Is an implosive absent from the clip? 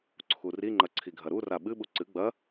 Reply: no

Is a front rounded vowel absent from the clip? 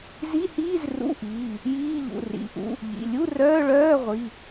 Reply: no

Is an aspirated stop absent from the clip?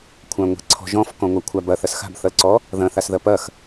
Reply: no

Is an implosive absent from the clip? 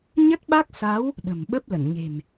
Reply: no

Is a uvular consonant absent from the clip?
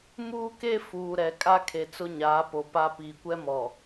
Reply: yes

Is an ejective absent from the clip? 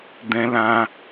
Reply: yes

